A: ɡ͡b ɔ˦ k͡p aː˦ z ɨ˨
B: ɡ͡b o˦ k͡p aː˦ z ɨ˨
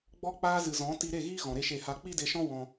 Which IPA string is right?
A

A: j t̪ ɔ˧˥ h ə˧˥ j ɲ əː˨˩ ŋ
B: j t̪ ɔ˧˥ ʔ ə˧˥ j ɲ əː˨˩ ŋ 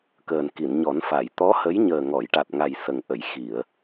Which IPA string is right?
A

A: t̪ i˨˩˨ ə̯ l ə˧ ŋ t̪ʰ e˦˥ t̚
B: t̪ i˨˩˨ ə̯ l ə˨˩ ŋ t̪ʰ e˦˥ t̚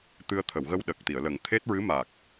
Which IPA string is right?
B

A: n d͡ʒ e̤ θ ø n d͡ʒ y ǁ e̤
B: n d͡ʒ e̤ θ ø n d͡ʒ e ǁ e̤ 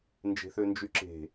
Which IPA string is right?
A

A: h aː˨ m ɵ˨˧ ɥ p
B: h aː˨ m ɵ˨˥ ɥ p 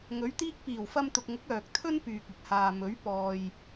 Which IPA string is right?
B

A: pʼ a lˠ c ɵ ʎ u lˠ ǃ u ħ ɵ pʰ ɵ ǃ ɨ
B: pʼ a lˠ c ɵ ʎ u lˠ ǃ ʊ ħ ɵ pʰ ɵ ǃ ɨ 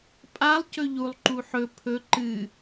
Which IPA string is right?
A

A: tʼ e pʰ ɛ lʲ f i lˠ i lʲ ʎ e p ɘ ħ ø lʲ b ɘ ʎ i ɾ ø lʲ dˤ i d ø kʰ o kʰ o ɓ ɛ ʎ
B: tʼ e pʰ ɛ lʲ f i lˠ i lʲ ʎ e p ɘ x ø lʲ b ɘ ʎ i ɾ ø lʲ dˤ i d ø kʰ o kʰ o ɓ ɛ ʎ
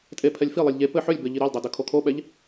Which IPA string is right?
A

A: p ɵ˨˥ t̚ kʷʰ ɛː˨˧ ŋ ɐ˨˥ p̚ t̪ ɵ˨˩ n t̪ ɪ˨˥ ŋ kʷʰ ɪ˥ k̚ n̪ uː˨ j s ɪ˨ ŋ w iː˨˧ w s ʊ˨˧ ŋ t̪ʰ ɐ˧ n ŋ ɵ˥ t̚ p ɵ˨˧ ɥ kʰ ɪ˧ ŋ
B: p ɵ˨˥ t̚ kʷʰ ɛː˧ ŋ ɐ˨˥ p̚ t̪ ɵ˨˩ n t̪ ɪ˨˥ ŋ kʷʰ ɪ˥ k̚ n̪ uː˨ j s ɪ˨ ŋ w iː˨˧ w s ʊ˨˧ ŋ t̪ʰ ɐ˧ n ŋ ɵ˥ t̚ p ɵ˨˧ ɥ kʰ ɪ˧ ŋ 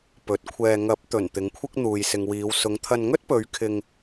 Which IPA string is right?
B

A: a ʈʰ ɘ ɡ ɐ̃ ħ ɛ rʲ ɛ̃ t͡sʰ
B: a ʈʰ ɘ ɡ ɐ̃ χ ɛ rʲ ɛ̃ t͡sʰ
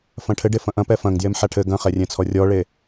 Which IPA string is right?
B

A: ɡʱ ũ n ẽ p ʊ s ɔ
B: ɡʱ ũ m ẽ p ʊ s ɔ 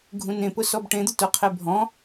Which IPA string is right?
A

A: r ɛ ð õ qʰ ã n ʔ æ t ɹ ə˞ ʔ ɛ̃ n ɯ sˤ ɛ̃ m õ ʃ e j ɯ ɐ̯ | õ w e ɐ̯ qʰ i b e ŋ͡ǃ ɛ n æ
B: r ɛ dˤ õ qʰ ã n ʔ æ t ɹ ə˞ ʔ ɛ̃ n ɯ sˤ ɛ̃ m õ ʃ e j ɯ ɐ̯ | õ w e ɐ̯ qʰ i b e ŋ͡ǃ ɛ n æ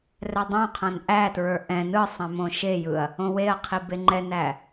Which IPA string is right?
B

